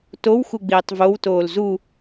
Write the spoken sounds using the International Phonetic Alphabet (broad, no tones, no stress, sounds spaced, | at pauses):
t o w x u ɡ͡b iː tˤ v o w t oː l z u